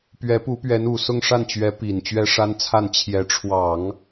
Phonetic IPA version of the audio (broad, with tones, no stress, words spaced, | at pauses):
pɥɛ˧˥pu˧˥pɥɛ˧˥n u˨˩sʊ˥˧ŋʂa˥˩nt͡ɕɥɛ˧˥ pi˨˩n t͡ɕɥɛ˥ʂa˥nt͡sʰa˥˩n t͡ɕʰjɛ˧˥ʈ͡ʂʰwɑ˨˩˦ŋ